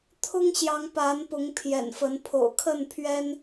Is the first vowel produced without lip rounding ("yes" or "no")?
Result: no